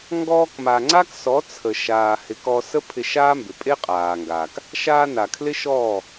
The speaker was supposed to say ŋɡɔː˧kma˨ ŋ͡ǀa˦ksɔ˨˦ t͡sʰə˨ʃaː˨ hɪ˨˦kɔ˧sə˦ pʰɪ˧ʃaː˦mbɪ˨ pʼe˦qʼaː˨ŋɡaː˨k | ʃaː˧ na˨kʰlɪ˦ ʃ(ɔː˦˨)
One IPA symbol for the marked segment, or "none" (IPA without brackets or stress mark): ɔː˦˨